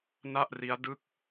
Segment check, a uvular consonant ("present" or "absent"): absent